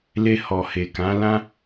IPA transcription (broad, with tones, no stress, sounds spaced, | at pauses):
l e˧ h ɔ˨ h e˨ k ã˨˦ l ã˦